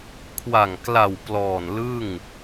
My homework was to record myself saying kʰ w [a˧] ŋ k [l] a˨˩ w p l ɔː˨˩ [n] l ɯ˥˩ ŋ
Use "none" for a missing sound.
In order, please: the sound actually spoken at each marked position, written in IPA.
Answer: a˨˩, l, n

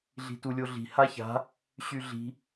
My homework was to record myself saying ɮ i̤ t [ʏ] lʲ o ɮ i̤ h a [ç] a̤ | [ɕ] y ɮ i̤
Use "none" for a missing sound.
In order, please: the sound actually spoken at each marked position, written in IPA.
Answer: u, ç, ɕ

